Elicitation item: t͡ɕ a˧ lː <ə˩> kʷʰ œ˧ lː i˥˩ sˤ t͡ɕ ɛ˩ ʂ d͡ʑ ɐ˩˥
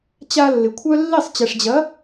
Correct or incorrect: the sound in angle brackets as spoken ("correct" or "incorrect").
incorrect